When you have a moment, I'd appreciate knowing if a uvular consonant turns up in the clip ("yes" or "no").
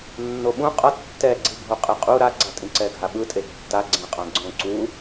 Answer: yes